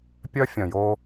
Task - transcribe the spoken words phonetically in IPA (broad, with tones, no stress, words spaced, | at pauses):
pʲœ˦fʲœ̃˨jo˦